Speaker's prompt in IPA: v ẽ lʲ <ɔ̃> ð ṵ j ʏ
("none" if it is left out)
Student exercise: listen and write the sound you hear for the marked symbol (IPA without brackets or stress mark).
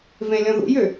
ɔ̃